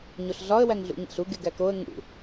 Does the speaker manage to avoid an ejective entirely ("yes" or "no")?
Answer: yes